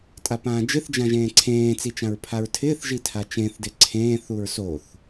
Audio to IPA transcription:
tʼ a p ãː d͡ʒ ɪ θ d͡ʒ ã ʒ ẽː ǀʰ ẽː t͡s i t͡ʃ ã ɹ pʰ a ɹ tʰ ɪː θ ʒ i tʰ a t͡ʃ ẽ θ d ɪ ǀʰ ẽː θ u ɹ s o θ

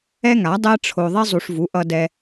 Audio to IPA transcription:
ɛ˦ ŋ a˨˦ dˤ ɛ˦ ʈ͡ʂʰ o˧ ðˤ i˦ zˤ u˧ ʂ v u˨˦ ʔ ʌ˦ d ɛ˦

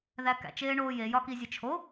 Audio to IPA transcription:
ð æ k æ̰ t͡ʃ eː ɳ oː j e j ɒ k i zʲ e t͡ʃʰ o

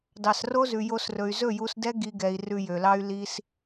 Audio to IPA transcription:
d ɑ˨ s r o˦ z ʉ˨ j o˧ s r ɵ˨ y̯ z ɵ˦˨ j u˧ s d ɛ˦ ɡ i˦ ɡ ɛ˧ i̯ r ʉ˧ j ø˨ l ɑ˦ y̯ l i˦ s

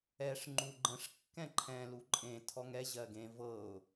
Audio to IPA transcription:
ɛ ʂ ŋ͡ǃ u ɡ͡ǃ ə̃ ʂ kː ɛ̃ ǃʰ ɛ̃ l u ǃʼ ẽ tʰ ɔ ŋ ɛ ʑ ɜ ɡ ẽ v ɤ ʊ̯

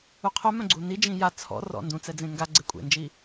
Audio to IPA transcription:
u qʰ œ m œ̃ ɡ͡ǀ u n i d͡ʒ ĩ j a t͡sʰ ɔ̰ r ɔ̰ n d ũ t͡s ɛ d͡z ẽ ŋ ɡ a ɡ͡ǀ e kʷʼ ḛ n d͡ʒ i

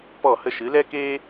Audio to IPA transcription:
p ɔ˦˨ h ə˧ ʃ ɨ˨˦ l ɛ˦ k eː˦

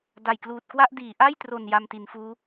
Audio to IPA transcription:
d a˨˩ j k l uː˨˩ t̚ k w a˥˩ ʔ d iː˩˦ ʔ a˥˩ j t r o˨˩ n j a˧ m t i˩˦ n f uː˦˥

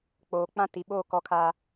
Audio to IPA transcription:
k͡p oː˨ k͡p ã˦ t i˨ ɓ oː˦˨ k ɔ˨ kʰ a˨

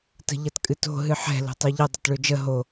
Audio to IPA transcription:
t ə̤ ʎ ʌ t kʼ ɨ t o̤ ɦ ɨ ħ ɛ̤ l o̤ tˤ ø ʎ ʌ dˤ ʌ t ɭ ø d͡ʒ ə ɦ o

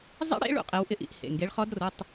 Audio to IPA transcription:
zˤ ḭ˦˥ ɽ ḛ˨˦ ɭ ṵ˦˥ qʼ e˨˦ w ʔ ɪ˧˥˧ ʔ ḭ˦˥ ʔ h ḛ˩˧˩ ŋ ɡ e˨˦ ɭ χ ɔ˦˥ d r ʊ˧˥˧ tˤ

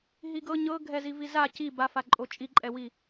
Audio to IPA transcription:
ɦ i ɡ ɤ ɲ ɤ ɡʱ ɛ z i v i z a c i b a f a ǃʼ o t͡ʃʼ i ǃʼ ɛ w i

